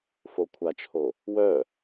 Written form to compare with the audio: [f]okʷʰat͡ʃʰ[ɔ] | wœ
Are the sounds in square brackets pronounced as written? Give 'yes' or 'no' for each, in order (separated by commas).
yes, no